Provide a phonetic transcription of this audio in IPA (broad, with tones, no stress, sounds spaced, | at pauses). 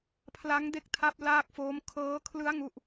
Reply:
pʰ l a˦˥ ŋ d e˦˥ k̚ tʰ a˦˥ p̚ l aː˥˩ k̚ f oː˦˥ m kʰ ɤː˦˥ kʰ l ɯ˦˥ a̯ ŋ u˥˩ ʔ